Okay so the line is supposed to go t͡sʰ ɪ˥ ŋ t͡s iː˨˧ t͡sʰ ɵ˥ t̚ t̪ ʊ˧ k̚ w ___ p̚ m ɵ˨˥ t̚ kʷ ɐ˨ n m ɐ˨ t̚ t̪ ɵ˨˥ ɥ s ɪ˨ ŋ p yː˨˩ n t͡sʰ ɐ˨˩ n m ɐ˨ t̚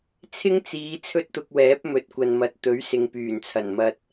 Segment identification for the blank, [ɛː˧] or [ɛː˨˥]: ɛː˨˥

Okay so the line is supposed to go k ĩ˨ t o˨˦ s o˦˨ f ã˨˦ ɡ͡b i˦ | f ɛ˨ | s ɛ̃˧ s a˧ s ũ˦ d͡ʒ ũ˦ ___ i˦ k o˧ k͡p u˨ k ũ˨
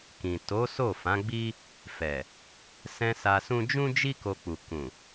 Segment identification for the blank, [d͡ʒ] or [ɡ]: d͡ʒ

